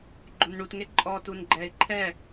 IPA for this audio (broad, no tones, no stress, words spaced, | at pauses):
ɡ͡ǃonɳutŋe ǃʼɔ tunɡ͡ǃɛɪ̯ ǃʰɛ